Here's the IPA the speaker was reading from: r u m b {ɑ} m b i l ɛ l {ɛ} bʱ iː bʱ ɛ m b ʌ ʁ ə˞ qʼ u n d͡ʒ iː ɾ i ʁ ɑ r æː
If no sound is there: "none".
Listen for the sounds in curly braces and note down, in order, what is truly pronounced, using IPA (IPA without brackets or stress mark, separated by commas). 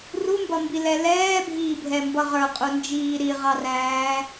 ʌ, ɛː